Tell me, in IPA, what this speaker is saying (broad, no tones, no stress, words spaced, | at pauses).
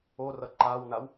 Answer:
orʌ ǃawnaw